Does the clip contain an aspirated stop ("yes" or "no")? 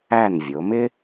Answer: no